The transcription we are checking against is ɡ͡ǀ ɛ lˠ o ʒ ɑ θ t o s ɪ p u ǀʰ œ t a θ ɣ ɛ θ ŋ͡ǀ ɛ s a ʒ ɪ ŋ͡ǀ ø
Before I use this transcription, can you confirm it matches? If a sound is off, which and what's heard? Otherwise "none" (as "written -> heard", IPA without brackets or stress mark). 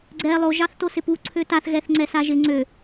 œ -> ø